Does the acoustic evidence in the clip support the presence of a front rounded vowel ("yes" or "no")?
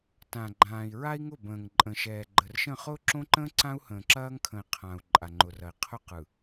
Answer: no